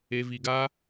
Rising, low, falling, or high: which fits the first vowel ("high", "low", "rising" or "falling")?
low